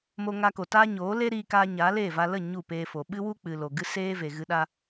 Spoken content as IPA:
m o˧ ŋ a˧ k o˨ t aː˦ ɲ oː˨˦ l e˦ ɾ iː˧ k aː˧ ɲ aː˨˦ l eː˦˨ v a˧ l ə˦˨ ɲ u˦˨ p eː˧ f o˨ ɓ ɨ˦ w u˦ k͡p ɨ˨ l o˨ ɡ ɨ˦ s eː˦ v e˨ ɣ ɨ˧ ɗ a˦

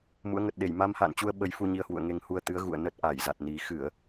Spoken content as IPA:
m ṵ˧˥ ə̯ ŋ ə˨˩ t̚ ɗ e˧˩ j m a˧ m h a̰ː˧˨ n t͡ɕ u˧ ə̯ ɓ ə˨˦ j f u˧ ɲ i˧ ə̯ h w ṵ˧˨ ə̯ ŋ e˧ ŋ h u˧ ə̯ t̪ ɨ˨˦ ə̯ ɣ ṵ˧˨ ə̯ n ə˦˥ t̚ ʔ a˧˩ j z a˨˩ t̚ n i˨˩ x ɨ˧˩˨ ə̯

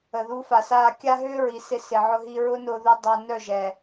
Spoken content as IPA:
ə˨ ð u˧ f a˨ s aː˧ kʲ a˦ ɦ ʏː˦ ɹ i˨ s ɪ˧ s ɪ˨ ʕ ʊ˧ ɦ i˧ ɹ ʊ˦ n ʊː˧ ð u˧ dˤ ɐ˧ n œ˦˨ ʒ ɛ˨

